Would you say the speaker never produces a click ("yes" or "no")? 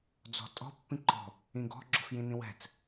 no